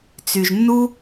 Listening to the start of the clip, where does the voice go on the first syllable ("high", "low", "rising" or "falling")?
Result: low